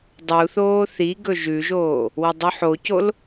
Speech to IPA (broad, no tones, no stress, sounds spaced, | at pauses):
dˤ u θ oː θ i ɡ ɵ ʒ ʉ ʒ oː | w ɐ dˤ u ħ o c o l